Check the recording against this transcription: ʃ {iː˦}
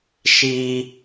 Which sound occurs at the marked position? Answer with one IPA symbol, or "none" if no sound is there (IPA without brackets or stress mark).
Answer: i˦